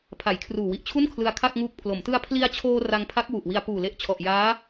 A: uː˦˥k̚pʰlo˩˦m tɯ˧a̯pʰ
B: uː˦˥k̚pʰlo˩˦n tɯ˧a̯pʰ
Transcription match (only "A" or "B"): A